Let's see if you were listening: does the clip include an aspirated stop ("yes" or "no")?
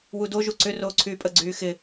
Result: yes